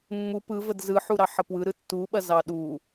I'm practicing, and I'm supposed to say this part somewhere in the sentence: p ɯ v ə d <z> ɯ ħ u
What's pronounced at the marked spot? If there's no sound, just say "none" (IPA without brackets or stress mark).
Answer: z